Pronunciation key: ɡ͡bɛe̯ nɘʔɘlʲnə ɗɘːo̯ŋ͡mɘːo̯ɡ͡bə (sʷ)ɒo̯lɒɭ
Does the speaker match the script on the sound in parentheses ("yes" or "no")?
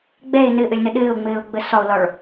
no